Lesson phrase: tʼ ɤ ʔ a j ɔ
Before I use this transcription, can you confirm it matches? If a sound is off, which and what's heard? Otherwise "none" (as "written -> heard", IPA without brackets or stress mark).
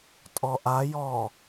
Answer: ɤ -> ɔ